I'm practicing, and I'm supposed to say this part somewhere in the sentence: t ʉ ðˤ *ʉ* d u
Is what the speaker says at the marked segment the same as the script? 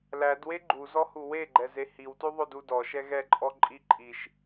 no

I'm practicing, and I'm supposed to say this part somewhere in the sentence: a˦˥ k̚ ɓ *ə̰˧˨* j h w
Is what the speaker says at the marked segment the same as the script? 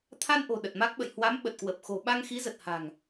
yes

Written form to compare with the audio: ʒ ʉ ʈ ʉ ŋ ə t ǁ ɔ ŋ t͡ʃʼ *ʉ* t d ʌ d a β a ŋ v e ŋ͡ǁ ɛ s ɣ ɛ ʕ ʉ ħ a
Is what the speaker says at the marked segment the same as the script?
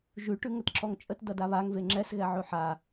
no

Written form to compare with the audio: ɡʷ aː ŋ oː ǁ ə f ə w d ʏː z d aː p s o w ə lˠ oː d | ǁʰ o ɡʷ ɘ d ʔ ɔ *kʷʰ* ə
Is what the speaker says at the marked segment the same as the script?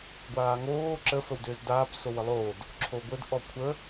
yes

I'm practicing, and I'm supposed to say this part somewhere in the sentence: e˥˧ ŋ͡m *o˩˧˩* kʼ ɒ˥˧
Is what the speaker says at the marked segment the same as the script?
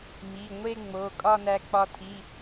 yes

